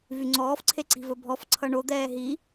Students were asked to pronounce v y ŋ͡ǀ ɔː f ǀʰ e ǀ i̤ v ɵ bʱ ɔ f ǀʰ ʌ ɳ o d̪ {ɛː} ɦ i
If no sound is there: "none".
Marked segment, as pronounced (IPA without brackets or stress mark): ɛː